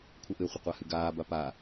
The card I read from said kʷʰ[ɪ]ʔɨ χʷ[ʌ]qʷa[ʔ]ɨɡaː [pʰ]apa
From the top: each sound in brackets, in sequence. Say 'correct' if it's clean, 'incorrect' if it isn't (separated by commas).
correct, incorrect, incorrect, incorrect